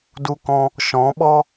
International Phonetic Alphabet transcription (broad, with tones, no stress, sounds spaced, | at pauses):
d u˧ k ɔ̃˧ | ʃ ɔ̃˨˦ ɓ ɔ˦